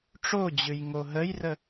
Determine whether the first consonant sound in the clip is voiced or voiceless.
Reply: voiceless